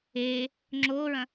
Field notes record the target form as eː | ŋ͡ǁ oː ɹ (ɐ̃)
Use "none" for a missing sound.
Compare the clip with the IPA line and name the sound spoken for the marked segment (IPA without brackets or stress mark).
ɐ̃